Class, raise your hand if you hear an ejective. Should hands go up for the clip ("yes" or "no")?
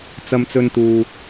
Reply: no